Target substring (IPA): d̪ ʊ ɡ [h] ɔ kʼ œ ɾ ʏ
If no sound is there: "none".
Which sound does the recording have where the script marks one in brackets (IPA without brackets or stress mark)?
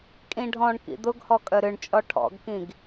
h